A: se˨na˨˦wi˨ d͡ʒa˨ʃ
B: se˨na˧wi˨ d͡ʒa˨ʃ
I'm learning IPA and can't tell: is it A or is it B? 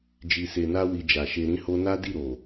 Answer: B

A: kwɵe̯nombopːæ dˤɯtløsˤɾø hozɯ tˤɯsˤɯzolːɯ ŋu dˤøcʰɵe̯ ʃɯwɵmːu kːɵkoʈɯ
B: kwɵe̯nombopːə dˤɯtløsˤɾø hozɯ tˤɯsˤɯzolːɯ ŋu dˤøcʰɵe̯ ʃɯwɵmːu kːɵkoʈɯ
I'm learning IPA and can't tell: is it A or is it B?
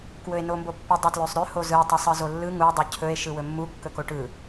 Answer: B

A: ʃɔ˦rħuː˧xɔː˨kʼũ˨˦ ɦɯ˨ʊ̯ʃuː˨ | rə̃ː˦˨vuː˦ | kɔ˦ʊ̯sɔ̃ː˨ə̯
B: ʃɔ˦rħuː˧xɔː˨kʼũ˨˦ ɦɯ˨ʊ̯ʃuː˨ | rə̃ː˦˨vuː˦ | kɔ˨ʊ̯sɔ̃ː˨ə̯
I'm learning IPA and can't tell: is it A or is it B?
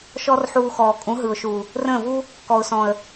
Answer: B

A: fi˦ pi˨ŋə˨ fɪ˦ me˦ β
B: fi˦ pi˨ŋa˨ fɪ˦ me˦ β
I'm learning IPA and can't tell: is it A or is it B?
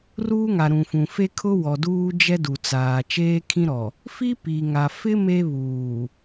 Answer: B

